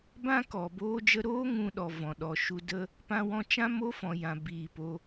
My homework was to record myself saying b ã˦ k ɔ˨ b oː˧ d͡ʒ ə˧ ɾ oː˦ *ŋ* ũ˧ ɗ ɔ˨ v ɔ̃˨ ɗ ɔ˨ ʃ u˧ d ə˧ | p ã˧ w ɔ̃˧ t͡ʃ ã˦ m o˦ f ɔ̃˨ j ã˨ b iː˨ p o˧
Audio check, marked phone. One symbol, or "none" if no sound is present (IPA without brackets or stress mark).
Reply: ŋ